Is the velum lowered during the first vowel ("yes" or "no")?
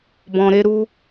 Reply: yes